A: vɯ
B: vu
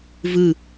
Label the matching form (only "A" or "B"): A